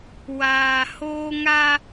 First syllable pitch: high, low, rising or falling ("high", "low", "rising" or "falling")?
low